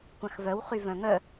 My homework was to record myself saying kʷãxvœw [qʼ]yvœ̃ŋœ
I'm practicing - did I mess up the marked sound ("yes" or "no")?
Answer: yes